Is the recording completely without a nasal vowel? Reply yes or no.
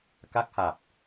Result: yes